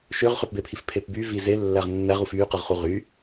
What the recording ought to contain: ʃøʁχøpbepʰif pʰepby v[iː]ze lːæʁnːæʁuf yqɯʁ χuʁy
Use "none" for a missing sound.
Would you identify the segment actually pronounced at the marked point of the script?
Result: i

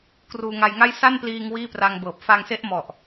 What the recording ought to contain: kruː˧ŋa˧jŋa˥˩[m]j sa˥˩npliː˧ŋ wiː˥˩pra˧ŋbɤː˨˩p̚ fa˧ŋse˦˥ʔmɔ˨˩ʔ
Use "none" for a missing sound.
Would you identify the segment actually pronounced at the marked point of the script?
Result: none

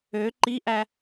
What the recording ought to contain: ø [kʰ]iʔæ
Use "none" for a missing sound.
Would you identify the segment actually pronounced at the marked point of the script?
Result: ǃ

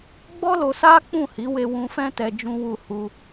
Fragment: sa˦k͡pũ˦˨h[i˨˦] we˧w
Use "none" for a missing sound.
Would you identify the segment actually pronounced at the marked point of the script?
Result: i˨˦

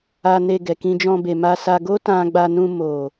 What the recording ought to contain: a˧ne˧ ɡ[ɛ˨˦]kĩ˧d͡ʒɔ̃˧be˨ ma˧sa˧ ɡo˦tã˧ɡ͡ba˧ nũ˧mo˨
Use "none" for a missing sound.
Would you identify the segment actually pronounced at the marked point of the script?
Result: ɛ˨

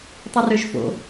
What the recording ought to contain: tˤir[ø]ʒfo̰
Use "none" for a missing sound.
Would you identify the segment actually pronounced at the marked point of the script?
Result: ø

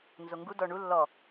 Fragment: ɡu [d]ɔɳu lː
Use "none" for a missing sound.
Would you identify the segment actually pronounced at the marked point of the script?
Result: d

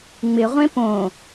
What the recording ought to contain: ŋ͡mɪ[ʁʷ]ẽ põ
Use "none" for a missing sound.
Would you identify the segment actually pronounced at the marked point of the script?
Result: ʁʷ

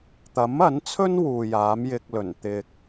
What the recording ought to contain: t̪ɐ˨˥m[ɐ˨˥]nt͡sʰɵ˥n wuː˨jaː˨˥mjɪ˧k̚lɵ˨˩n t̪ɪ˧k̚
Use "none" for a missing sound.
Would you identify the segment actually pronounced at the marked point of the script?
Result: ɐ˨˥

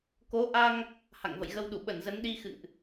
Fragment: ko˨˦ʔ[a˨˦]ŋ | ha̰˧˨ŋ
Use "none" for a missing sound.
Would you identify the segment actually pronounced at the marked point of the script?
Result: a˧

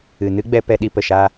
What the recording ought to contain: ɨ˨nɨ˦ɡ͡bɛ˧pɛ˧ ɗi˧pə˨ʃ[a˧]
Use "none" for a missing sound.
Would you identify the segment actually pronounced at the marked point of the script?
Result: a˧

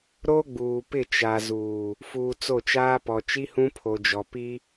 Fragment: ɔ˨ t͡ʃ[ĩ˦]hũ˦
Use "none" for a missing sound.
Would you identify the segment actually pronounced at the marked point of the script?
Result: i˦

